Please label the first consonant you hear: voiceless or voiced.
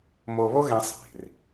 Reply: voiced